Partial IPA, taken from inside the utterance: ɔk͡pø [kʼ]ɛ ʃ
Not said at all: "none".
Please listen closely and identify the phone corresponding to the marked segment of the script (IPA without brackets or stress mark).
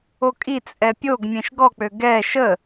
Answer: ɡ